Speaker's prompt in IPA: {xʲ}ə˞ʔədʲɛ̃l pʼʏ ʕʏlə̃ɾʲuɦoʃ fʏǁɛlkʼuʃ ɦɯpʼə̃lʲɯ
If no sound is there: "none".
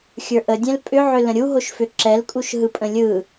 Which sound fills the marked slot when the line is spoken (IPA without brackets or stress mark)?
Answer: xʲ